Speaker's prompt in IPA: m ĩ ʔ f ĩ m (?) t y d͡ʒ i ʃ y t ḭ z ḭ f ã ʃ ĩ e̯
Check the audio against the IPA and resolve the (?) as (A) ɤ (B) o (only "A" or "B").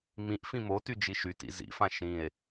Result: B